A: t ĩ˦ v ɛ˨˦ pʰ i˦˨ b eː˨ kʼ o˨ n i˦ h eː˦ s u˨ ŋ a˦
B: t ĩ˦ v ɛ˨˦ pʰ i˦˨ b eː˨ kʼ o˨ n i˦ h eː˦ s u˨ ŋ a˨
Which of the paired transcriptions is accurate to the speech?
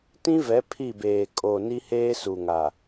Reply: B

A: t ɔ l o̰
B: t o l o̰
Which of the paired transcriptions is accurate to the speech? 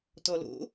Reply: A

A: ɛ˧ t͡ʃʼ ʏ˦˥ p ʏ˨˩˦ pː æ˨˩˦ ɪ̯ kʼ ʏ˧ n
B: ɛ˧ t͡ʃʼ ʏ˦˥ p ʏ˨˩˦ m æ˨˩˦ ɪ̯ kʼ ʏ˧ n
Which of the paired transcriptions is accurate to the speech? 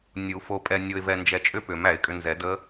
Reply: B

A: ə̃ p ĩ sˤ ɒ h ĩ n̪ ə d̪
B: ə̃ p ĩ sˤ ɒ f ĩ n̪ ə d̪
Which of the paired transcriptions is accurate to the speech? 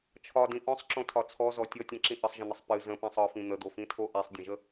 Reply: B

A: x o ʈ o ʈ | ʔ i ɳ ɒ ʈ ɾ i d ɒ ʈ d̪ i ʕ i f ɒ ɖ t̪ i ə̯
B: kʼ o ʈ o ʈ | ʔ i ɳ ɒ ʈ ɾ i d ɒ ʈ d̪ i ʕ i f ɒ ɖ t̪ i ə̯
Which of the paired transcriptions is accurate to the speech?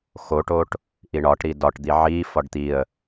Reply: A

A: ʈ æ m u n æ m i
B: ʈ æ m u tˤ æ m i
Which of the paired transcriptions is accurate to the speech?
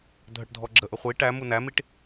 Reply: A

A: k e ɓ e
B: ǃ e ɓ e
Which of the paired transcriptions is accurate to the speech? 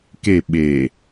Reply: A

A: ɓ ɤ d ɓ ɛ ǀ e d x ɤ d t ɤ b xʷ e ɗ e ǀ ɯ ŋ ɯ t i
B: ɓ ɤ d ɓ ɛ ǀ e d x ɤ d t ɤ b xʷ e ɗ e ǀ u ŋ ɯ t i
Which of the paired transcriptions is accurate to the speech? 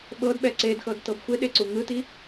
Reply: B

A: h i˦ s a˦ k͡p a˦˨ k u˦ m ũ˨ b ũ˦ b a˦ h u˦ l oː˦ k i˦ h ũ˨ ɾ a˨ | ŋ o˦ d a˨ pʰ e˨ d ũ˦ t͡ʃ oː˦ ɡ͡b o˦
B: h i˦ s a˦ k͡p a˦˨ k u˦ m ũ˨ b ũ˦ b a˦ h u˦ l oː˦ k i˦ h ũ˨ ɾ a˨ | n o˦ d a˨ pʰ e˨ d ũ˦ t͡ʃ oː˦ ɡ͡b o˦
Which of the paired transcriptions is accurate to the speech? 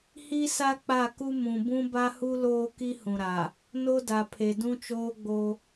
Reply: B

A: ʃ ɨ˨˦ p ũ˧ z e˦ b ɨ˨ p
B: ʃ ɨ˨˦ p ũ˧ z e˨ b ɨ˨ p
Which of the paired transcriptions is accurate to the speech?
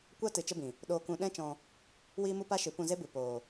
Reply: A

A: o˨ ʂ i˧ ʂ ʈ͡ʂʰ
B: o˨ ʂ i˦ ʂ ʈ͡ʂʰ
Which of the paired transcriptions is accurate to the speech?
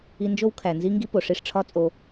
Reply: A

